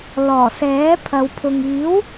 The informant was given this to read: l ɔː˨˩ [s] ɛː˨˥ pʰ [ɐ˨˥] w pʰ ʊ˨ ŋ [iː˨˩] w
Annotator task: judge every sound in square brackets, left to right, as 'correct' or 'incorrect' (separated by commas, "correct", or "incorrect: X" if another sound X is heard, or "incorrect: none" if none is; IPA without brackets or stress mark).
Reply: correct, incorrect: ɐ˨˧, incorrect: iː˨˥